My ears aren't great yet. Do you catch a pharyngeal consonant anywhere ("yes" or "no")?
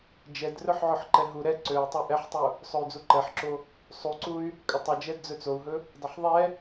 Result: yes